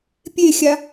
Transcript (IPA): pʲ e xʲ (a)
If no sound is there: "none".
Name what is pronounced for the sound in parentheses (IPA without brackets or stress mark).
a